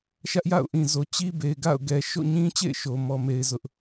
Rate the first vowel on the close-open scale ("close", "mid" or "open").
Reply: open